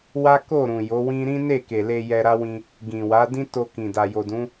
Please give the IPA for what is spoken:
w a˦ k o˦˨ ɾ ũ˨ j o˨˦ w ĩ˦ ɾ ĩ˦ n e˦˨ k e˨ l e˧ j ɛ˧ ɾ a˦ w ĩ˧ | ɡ ĩ˨ w a˨˦ d ĩ˦ t o˧ k ĩ˨ d a˨ j o˨ d ũ˨˦

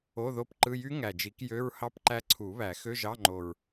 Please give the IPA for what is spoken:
o˧˥˧ ð o˦˥ p ǃ ɯ˧˥˧ j y˦˥ ŋ æ˨˩ d͡ʒ i˨˩˦ k j ø˧˥˧ ɹ h ɑ˦˥ p ǃ æ˦˥ ǀʰ u˨˩˦ β æ˨˩˦ x ø˧˥˧ ʒ ɑ˧˥˧ ŋ͡ǃ o˨˩ ɹ

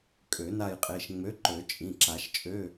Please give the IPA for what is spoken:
kʼ ø˨˩˦ n a˦˨ j qʼ e˩˧˩ ʃ ŋ͡m ø˨˥ ǃ ø˨˩˦ t͡ʃʼ ĩ˩˧˩ ǁ a˨˩˦ ʃ t͡ʃʼ ø˧˥˧

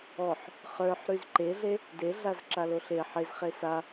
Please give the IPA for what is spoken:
ɔ ħ | χ ə˞ ħ ɾ y z ǃ e ɮ e | d e ɮ a z ǁ a l o ɬ e ħ e z χ e s a

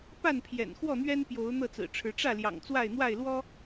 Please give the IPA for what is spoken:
p a˥˨ n pʰ j ɛ̰˨˩ n x w ɔ˥˨ n̪ ɥ ɛ˦ n p j o˨˦ ʊ̯ n̪ ɤ˥˨ t͡s ɹ̩˨˩ ʈ͡ʂʰ ɻ̩˨˦ ʈ͡ʂ ä˥˨ l j ɑ̰˨˩ ŋ t͡s w a˥˨ ɪ̯ n̪ w a˥˨ ɪ̯ l w ɔ˦

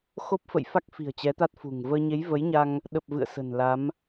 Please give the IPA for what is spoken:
x o˦˥ p̚ f ə̰˧˨ j f a˦˥ k̚ f i̤˨˩ ə̯ t͡ɕ ɛ˨˦ t̪ a˦˥ t̚ f ṳ˨˩ ŋ v əː˧ ɲ e˨˦ j v ə˨˦ j ɲ a˧ ŋ | ɗ ə˨˩ p̚ v ɨ̰˧˨ ə̯ s ə̤˨˩ n l a˨˦ m

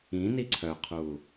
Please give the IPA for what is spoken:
ĩ n i ǀʰ œ qʰ uː

